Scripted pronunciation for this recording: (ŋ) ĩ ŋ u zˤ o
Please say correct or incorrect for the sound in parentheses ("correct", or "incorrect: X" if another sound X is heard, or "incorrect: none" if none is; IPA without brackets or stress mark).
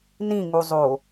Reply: incorrect: n